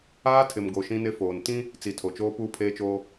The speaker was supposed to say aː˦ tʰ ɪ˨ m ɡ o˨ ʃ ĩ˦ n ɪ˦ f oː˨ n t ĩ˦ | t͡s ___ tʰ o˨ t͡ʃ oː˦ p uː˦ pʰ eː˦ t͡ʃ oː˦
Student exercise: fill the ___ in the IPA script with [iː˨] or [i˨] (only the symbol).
i˨